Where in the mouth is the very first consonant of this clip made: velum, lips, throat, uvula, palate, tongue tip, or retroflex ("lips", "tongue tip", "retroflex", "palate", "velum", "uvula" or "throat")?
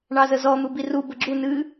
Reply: retroflex